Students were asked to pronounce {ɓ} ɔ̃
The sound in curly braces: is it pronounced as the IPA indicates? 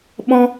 yes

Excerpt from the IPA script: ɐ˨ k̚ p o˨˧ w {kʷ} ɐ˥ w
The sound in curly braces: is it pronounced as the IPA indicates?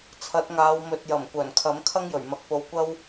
yes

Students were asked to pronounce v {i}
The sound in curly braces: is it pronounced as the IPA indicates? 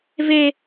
no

